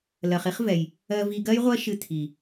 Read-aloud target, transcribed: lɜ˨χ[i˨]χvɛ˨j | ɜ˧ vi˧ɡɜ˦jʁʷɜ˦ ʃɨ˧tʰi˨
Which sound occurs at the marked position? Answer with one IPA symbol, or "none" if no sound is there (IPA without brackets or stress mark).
i˦